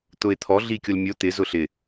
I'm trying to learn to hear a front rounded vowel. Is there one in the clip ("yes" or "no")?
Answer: no